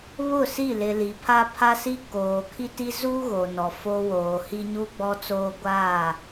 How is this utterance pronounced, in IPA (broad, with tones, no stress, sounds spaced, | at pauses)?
β ʊ˦˨ s i˦˨ l ɪ˨ l i˨ pʰ a˦ pʰ a˦ s i˦ k oː˨ kʰ i˦ t i˦ z u˦ ɣ o˨ n ɔ˨ f o˦ w oː˨ h i˦ ɲ u˦ ɡ͡b ɔ˦ t͡s oː˦ ɡʷ aː˦˨